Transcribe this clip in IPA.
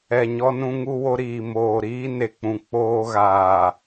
ɛ˨ɲɔ˦nũ˦ ŋu˦wo˦ɾiː˨ moː˨ɾiː˦ ne˨k͡pũ˨ k͡poː˦ɣaː˨

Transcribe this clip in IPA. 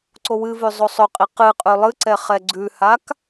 ǀowɨvʉ zˤosˤɵqʼi qɨqʼʉ lˠɨǀɛχɛ ɡ͡ǀʉhak

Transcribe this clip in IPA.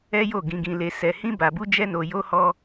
ɛ˦jo˦˨ ɡĩ˧ɡĩ˧le˧ sɛ˧hĩ˦ba˧bu˦ d͡ʒɛ˦no˧jo˦hɔ˦

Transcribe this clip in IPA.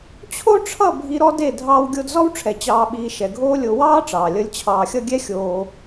t͡ɕʰo˦ʈ͡ʂʰʌ˦˨ bʱi˧ɾɔ˦ de˦˨ dʱɑː˧w ɡʲo˧dzɔ˦wʈ͡ʂʰɛ˨ t͡ɕɑː˧ɓiː˧ ʃɛ˨ɡʱoː˦lʲo˧ wɑː˦ ʈ͡ʂɑː˨lʲʌ˧lʲ t͡ɕʰɑː˨xʲʌ˧ɡʲɛ˦ xʲoː˧

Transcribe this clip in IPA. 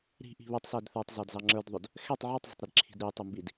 ɾi̤ʔi̤ βɛtˤsæd θə˞tˤzɑdzɑ ŋ͡ǁə˞dðˤʊd | xɛtˤ ʕitˤzˤə̤tˤɾɪdǁʰi̤d ɾitˤɪmbid

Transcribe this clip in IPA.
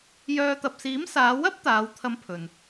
jœː˧ t̪ɐ˨p̚siː˨˥msaː˨˧ wɐ˥p̚ t̪aː˨˧wt̪ʰɐ˧m pʰɵ˨n

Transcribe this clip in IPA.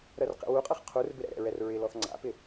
ɾɜrqɛ̰wuqʼɤχ qʰurbɪ ɾɛ̰ɾɛ̰ɹɛr ɹɪlɔθ ŋ͡ǀa̰pɪ

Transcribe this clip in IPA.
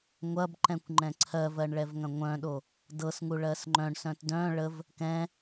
ŋʷɐbǃɛ̃kʷ ŋ͡ǃɛ̃ǀʰɜvɜɳ ɭɛvŋɐ̃ŋʷœ̃ɗo | dɤsŋu ɭɜsŋ͡ǃœ̃ɳsœ̃t dœ̃ ɭəv | kɛ̃

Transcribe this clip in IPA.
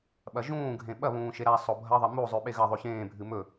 ɓɐʒũːɡʱẽ ɓɐβũː ʃeɾasˤo bʱɐðˤɐ mu zˤʉɓeɣɐðˤʉ çẽːbʱɨ mɵ

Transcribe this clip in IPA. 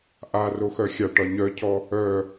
ʔa roxœxʲaʈɒ ɲœcʰɔ | œ

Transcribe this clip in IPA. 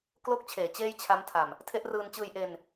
klo˥˩k̚t͡ɕʰeː˨˩ t͡ɕeː˥˩jt͡ɕʰa˦˥m tʰa˨˩m | tʰe˦˥ʔrɯː˧nt͡ɕɯː˧jʔe˧n

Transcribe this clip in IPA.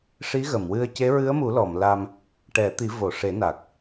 ʂi˧˥ɣə˨˩˨mwɨ˧ə̯ ce˧˥ɹɨ˧˥ə̯mu˨˩˦lɔ˨˩˨m la˧m | ʈɛ˨˩˦t̪i˨˩˦ vo˨˩˨ʂe˨˩˦na˨˩k̚

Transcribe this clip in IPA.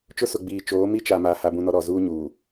t͡ʃʊ˦sʊ˨ɡ͡biː˨ t͡ʃoː˨˦mi˦t͡ʃa˨ma˨ ha˦bũ˦nɔ˦ɾɔ˨ zuː˦ɲuː˨

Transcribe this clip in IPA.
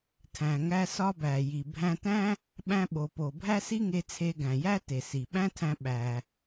tʰæ̃˩ŋæ˧ sɒ˧bæ˩ji˩ bʱæ̃˧tæ̃˥ | ɓæ̃˧ɓo˩po˩ bʱæ˥si˥ŋe˧ t͡sʰe˧ɡæ̃˩jæ˥ te˩si˩ɓæ̃˥tʰæ̃˧ ɓæ˩

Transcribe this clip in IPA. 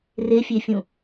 refʲefʲũ

